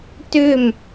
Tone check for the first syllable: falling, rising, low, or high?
falling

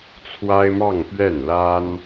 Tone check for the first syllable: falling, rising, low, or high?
high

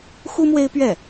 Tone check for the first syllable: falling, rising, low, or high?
high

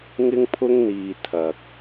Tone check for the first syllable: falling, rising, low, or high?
high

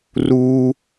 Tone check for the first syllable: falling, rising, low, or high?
high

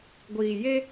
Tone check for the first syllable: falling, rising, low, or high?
low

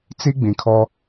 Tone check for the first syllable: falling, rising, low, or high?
high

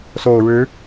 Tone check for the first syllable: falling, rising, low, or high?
low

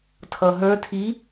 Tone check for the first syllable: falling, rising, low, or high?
low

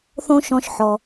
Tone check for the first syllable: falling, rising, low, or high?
high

